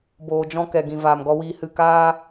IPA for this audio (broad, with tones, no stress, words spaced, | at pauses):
boː˨d͡ʒɔ̃˧ kɛ˨ɡĩ˨ vaː˨mɡɔ˧wiː˧hɨ˦˨ kaː˦